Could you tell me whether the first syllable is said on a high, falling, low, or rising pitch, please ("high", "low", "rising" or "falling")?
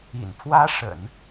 low